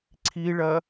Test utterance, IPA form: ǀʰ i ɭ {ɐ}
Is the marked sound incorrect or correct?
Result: correct